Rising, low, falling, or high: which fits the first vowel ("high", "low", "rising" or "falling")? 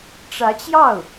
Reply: rising